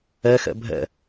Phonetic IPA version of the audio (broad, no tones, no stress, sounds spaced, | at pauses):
ɛ x ɛ̰ bʱ ɛ̰